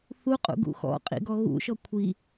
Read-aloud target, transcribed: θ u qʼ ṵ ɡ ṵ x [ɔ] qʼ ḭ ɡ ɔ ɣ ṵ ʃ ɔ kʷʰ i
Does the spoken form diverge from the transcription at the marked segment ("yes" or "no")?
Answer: yes